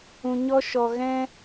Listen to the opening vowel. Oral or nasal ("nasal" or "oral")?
nasal